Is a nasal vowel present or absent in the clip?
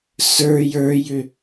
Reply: absent